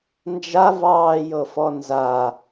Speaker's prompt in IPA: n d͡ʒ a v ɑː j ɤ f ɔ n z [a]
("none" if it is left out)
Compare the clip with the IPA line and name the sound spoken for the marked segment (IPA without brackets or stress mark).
a